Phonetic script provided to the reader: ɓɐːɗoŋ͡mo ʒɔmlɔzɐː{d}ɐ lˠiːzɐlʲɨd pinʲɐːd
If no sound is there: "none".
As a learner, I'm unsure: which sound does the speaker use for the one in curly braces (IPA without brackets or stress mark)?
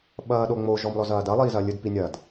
d